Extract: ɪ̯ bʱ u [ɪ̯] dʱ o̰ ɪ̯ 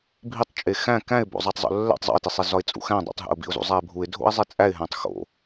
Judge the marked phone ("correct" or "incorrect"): correct